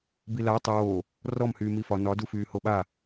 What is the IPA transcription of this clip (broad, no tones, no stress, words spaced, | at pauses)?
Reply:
bila tˤoː | rɔm hyːmifɒ nɒ dufyːhoɓa